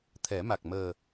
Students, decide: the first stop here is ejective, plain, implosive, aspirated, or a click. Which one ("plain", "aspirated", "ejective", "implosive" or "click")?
aspirated